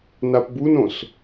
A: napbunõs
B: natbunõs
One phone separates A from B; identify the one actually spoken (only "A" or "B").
A